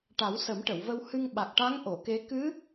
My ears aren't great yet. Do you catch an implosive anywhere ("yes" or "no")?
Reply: yes